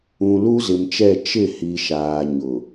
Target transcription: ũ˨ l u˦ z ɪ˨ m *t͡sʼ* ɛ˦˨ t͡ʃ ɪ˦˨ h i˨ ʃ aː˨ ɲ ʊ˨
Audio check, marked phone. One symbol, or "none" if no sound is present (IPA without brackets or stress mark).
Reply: t͡ʃ